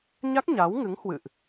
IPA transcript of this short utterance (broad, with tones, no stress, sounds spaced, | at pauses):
ɲ a˦˥ k̚ ɲ a˨˦ w ŋ ɨ˨˦ ŋ h w ɨ̰˧˨ ʔ